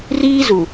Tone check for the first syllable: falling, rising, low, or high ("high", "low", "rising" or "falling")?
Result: high